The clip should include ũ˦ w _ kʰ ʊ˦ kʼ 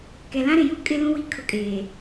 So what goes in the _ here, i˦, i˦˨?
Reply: i˦˨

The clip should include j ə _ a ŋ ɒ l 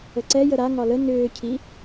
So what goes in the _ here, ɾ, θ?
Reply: ɾ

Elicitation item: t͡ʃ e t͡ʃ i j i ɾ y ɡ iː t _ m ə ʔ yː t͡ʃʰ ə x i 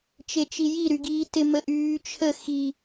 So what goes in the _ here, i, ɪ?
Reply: ɪ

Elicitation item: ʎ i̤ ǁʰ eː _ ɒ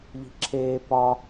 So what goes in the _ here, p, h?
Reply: p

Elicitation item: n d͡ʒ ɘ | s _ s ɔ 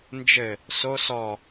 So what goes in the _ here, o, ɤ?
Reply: o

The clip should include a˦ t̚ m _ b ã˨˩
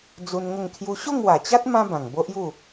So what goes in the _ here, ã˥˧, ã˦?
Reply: ã˦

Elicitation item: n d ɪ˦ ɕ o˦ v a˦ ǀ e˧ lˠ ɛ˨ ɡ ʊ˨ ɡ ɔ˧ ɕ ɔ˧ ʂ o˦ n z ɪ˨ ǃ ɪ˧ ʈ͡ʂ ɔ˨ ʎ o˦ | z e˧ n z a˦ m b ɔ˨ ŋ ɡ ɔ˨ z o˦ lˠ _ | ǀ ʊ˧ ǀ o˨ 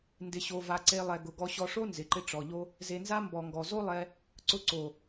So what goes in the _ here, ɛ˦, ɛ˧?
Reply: ɛ˧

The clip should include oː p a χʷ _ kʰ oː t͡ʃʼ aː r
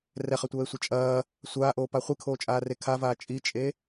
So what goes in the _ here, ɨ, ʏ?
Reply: ɨ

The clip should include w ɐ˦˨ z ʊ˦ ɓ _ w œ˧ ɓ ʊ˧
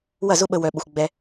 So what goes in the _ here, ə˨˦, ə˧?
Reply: ə˧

